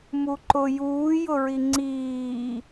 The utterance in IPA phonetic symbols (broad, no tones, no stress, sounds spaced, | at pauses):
m u ǃ ʊ j uː j ʊ ɹ i ŋ͡ǀ iː